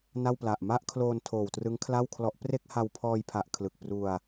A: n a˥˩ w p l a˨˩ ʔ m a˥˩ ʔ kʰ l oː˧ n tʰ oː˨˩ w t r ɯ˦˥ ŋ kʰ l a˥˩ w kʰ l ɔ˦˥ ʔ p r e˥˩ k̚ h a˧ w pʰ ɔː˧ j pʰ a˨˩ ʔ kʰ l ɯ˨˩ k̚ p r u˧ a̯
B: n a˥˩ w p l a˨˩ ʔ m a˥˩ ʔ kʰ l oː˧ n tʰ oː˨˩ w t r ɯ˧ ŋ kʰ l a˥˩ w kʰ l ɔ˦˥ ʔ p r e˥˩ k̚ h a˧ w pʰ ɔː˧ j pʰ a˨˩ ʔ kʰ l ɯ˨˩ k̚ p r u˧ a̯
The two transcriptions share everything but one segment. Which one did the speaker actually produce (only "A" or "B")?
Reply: A